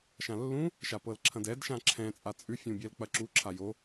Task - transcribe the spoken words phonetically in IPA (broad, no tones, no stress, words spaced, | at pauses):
ʃãlːũ | ʃapɤlǁʰɐ̃dɛd ʃãǁʰɛ̃ t͡sʼat͡sʼʉ fʲũbʲɛlk͡pɐǁu ǁʰajo